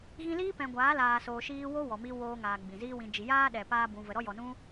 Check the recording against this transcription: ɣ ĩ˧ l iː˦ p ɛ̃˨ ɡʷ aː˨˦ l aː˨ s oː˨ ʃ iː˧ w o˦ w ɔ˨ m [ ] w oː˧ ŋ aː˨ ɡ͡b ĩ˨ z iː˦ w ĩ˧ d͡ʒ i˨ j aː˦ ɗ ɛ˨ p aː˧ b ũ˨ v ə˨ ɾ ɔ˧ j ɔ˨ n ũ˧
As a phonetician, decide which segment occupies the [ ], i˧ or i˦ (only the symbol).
i˧